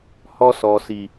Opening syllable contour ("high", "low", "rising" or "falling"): high